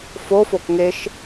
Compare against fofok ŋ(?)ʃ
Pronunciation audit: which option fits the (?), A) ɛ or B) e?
B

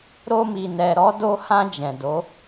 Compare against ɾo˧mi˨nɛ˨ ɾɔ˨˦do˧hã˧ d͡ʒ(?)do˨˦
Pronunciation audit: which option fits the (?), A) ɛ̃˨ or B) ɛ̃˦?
A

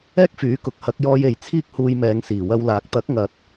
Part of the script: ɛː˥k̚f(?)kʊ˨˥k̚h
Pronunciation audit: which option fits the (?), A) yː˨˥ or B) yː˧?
A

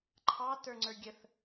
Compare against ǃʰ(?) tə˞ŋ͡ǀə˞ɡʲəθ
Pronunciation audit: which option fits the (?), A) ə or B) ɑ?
B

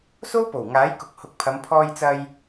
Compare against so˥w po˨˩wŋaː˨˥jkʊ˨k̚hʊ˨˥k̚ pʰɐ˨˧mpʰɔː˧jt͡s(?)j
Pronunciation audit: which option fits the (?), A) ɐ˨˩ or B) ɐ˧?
B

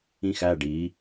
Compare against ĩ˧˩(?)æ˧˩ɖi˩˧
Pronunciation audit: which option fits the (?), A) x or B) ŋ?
A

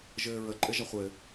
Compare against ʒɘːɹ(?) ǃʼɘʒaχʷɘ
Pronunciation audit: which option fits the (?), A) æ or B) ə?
B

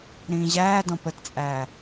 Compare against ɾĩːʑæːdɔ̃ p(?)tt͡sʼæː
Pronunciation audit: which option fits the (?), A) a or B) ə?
B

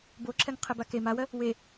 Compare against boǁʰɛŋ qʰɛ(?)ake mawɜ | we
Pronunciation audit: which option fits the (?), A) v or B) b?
B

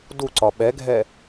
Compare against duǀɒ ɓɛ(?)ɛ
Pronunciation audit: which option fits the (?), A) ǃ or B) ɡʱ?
B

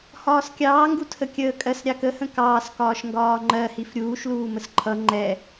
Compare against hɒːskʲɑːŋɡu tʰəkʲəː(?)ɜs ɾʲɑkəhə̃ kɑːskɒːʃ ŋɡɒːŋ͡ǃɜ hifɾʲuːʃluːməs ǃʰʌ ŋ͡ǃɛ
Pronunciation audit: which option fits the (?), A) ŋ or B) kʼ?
B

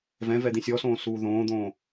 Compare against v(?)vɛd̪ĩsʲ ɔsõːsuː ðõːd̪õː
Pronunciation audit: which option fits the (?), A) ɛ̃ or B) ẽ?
A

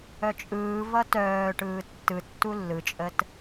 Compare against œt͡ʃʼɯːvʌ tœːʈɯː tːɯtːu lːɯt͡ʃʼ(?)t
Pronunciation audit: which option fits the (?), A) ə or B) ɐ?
A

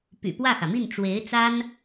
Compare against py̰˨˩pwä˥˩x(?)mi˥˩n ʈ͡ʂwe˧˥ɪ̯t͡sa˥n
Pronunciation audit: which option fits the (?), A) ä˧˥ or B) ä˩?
B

